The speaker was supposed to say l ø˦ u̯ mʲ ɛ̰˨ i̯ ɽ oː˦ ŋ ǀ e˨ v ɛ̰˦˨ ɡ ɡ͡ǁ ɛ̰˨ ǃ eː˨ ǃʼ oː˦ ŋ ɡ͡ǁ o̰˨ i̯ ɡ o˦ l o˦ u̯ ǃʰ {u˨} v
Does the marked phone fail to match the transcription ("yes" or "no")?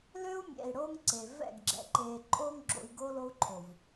yes